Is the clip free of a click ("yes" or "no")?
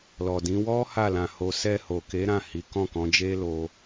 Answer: yes